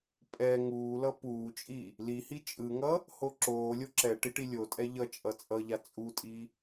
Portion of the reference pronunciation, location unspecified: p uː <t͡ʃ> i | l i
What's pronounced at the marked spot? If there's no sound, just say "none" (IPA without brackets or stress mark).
t͡ʃʼ